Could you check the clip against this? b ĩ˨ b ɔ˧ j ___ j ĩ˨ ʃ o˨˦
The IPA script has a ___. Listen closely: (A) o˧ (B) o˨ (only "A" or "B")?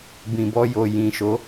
B